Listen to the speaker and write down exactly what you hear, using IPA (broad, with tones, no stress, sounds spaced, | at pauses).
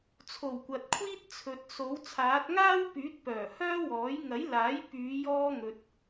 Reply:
t͡sʰ o˨˩ w kʷ ɐ˨ t̚ kʷʰ iː˥ t̚ t͡sʰ ɵ˨ t̚ s o˨˥ w t͡sʰ aː˨˥ t̚ ŋ aː˥ w p yː˨˥ t̚ p œː˨˩ h œː˥ w ɔː˨˥ j ŋ ɐ˨˥ j l aː˨˥ j p yː˨˧ j ɔː˥ ŋ ɵ˧ t̚